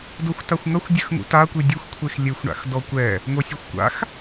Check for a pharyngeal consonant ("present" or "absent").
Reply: absent